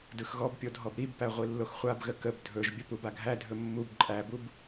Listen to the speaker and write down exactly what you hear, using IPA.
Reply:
d ɯ x ɣ ɔ b pʲ o dʱ ɔ b ɾ i b p æ ʁʷ i lː o x χʷ a b ɣ ə k ə b dʱ ɵ ʒ bʲ ə p u b a ɡʱ æ dʱ ɵ mː u b ǃʼ æ b u b

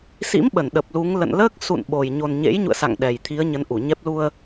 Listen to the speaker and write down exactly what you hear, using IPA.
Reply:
s ḭ˧˥ m ɓ ə˧˩ n ɗ ə˨˩ p̚ l u˨˦ ŋ l ə̰˧˨ n l əː˦˥ k̚ s ṵ˧˨ n ɓ o˨˩ j ɲ o˨˩ n ɲ ḛ˧˥ j ɲ ṵ˧˨ ə̯ s a̰˧˨ ŋ ɗ ɛ˨˩ j t̪ʰ i˨˦ ə̯ ɲ ə˨˦ n ʔ u˧˩ ɲ ɛ˦˥ p̚ l u˧ ə̯

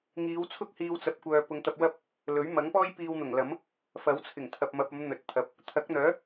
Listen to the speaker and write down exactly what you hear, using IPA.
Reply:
ŋ iː˨˧ w t͡sʰ ʊ˥ k̚ h iː˧ w t͡s ɐ˧ p̚ kʷ œː˧ p ʊ˨˧ ŋ t̪ ɐ˧ p̚ w ɐ˥ p̚ | l ɵ˨˥ ɥ m ɐ˨˥ ŋ p ɔː˥ j p iː˧ w n̪ ʊ˨˩ ŋ l ɐ˨˥ m | f ɐ˨˥ w t͡sʰ ɪ˨˩ ŋ t̪ʰ ɐ˨ p̚ m ɐ˨ p̚ ɐ˨˧ m n̪ ɵ˨ t̚ t̪ʰ ɐ˨ p̚ | t̪ʰ ɐ˨˥ k̚ n̪ œː˨˥

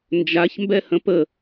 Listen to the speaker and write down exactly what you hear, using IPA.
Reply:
n d͡ʒ a ç m b ɛ h ə̃ p ə

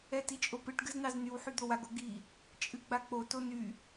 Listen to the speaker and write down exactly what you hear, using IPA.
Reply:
ɛ t i t͡ʃʼ o p ɨ ʈ ɡ ɨ z n ɑ z n y w ħ y d̪ o w a ɡ o ɡ i | t͡ʃʼ ɨ ɡ͡b a k͡p o t o n y

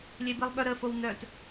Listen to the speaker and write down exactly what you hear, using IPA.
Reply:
lʲ e b i lˠ ɓ œ ɾ ə f o w n œ t

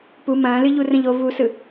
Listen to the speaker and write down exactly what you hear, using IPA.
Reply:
p u m ɐ̃ː l ɨ ʎ u r ə̃ ʎ o v u s ɯ

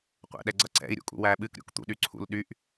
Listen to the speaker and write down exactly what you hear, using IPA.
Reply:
qʷ ɛ̰ ɗ ɛ ɡ͡ǀ ʌ ǀ ɛ̰ i̯ ɾʲ ṵ kʼ ṵ w æ ɓ ɨ k ɾʲ ṵ k t̪ ṵ ɗ y ǀʰ ṵ l ɗ y ʔ

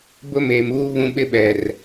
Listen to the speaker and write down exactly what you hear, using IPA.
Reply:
b ʊ˦ m eː˨ m uː˦ β ũ˦ ɓ ɪ˦ ɓ ɛ˨ r

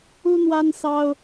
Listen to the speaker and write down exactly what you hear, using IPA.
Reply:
u˦ n̪ w a˦ n s ɑ˦ ʊ̯

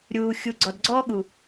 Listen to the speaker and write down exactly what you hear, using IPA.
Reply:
ɾʲ uː˨ xʲ u˨ ɡ͡ǀ ɔ˨ d ɡ͡ǀ ɔː˦ ɠ u˨

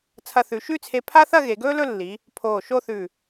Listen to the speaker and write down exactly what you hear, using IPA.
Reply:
t͡sʰ ɐ˧ θ ʉ˩˧ ʃ ʉ˥˧ t͡sʰ e˧ pʰ a˥ θ ɐ˥˧ ɣ e˩˧ ɡ ɵː˥ l ɵ˥˧ lː i˩˧ | pʰ oː˧˩ ʃ o˥˧ θ ʉ˧˩

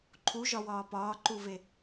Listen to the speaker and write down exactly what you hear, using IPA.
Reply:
ǃʰ u ʒ ɒ w ɒː p ɒː ǃ u v e

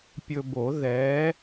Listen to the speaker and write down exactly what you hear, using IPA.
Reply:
pʲ ɵ˧ b o˨˩˦ ð ɛ˨˥

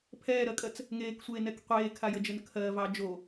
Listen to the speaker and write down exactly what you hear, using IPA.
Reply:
pʰ ɛː ɾ ɜ kʼ ɜ t͡s | ŋ eː k sʷ eː n ɛ k qʷ eː kʰ a j ə d͡ʒ ə n kʰ ɜ v ɑ d͡ʒ o

